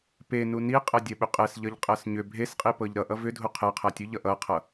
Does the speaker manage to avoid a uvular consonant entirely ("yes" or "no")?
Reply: no